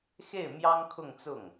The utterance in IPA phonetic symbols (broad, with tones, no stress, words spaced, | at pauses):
xe˥˩ɪ̯mjɑ˥ŋ kʰʊ˥˧ŋ t͡sʊ˥˩ŋ